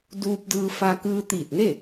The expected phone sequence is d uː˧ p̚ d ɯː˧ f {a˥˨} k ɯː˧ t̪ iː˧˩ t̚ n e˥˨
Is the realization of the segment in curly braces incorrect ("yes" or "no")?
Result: yes